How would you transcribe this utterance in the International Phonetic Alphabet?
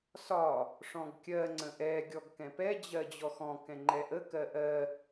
s ɒ | ʂ ɔ̃ ɡ kʲ ɜ ŋ͡ǀ ə̃ ʔ ɛ ɡʲ ɔ ɡ k ɛ̃ p ɛ d͡ʑ ɜ d͡ʑ ɔ x ɔ̃ k ɛ̃ ŋ͡ǃ ɛ ʔ ə k ɜ ʔ ɜ

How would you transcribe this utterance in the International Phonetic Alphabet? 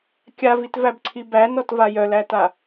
kʲ a v i t v æ b ǀʰ i b æ n ɔ t v a j œ l æ t a

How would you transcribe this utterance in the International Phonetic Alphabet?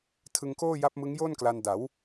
tʰ ɯ˧ ŋ k oː˥˩ j a˦˥ p̚ m ɯ˦˥ ŋ j oː˥˩ n k l a˧ n d a˩˦ w

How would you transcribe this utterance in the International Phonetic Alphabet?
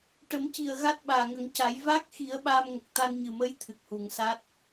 ʈ ə˨˩˦ m c i˨˩ ə̯ ɣ a˦˥ t̚ ɓ aː˨˩ ŋ ə˨˩˦ ŋ c a˨˩˦ j v a˦˥ k̚ x i˨˩˦ ə̯ ɓ aː˧ m ŋ ə˨˩ k̚ t̪ a˧ n ɲ ɨ˨˩ m ə˧˥ j t̪ʰ ɨ˨˩ k̚ h u˨˩ ŋ s a˦˥ t̚

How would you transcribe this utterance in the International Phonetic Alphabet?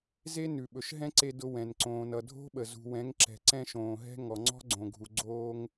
z e˦ n ʉ˨ ɓ ɵ˨ ʃ ɦ ɛ̃˦ ǀ e˨ d ʊ˨ w ɛ̃˨ n ǀ õː˨ n ʌ˨ dʱ o̤˦ ɓ ə˨ z ṳ˨ w ɛ̃˨˦ ŋ ǁ ɛ̤˨ ǀ ɛ̃˦ ʃ õː˨ ɦ ɛ̤˦ ŋ ɔ˨ ŋ͡ǀ ɔ̤˦ ɡ͡ǀ õ˨ ɡʱ u˨ ɡ͡ǀ oː˦ ŋ

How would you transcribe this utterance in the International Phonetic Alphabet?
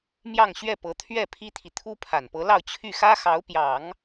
m j ɑ˥˧ ŋ ɕ ɥ ɛ˥˩ p ɤ˧˥ t̪ʰ ɥ ɛ˥˩ pʰ i˥ t̪ʰ i˨ t̪ʰ u˥ pʰ a˨˩ n p ɤ˧˥ l ɑ˥˧ ʊ̯ t͡ɕʰ y˥˩ x ä˥ x ɑ˧˥ ʊ̯ p j ɑ˨˩˦ ŋ

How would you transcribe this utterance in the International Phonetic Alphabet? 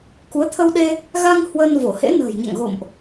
k u˨˦ ə̯ t̪ʰ ə˧ w ɗ e˧ | ɣ a˧ ŋ h w əː˧ n v o˧˩ h ḛ˧˥ n ə̤ː˨˩ j ɲ a̰˧˨ ŋ ɣ o̰˧˨ m ʔ

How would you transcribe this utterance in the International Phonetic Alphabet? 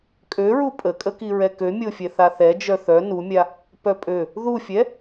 kʼ ø ɹ u pʼ ə kʼ ə k i ɹ ɛ k ø mʲ o fʲ ɛ θ a θ ɛ d͡ʒ œ θ œ n u mʲ a | p œ pʼ ø | ð u fʲ ɛ

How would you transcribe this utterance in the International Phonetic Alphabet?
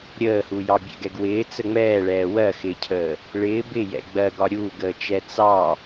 ɾʲ əː h u j ɑ bʲ ɛ̰ ɡ ɛ ɡ w ɪː t͡s ə ŋ͡m ɛː ɭ ɛː w ɜ x ɪː cʰ əː | ɭ ɪː b ɪ j ɛ̰ ɡ͡b ɜ ɡ ɒ ɾʲ uː ɡ əː t͡ʃ ɛ t͡s ɑ

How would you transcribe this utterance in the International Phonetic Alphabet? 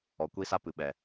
ɔ˨ kʷ i˦ s a˦ p ɨ˨ ɓ ɛ˨

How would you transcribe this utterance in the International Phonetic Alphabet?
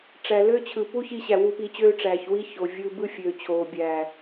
ʈ͡ʂ æ˨ l ø˦ t͡ɕʰ ɯ˨ p u˦ ç i˧ ɕ æ˨ w u˧ p iː˧ t͡ɕ øː˦ ʈ͡ʂ æː˨ ç w i˦ ç o˨ vʲ ɯː˧ b ɯ˦ fʲ øː˨ t͡ɕʰ oː˨ bʲ æː˨

